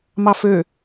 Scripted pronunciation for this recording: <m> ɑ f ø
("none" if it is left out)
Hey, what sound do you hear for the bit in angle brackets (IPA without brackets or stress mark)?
m